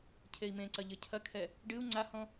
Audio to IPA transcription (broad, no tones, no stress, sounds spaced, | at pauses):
cʰ e i̯ m ẽ ǀ ɐ ʎ ɘ cʰ ɐ kʰ ɛ | ɖ ɨ u̯ ŋ͡ǀ a h ɔ̃